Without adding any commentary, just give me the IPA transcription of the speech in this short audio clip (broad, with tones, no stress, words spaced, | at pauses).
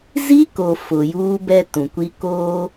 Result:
zi˦ko˨ fʊ˨juː˦bɛ˦ tũ˨kʷi˦ koː˦